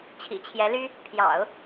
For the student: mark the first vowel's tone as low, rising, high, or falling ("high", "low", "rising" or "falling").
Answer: low